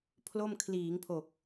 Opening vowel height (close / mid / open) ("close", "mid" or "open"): mid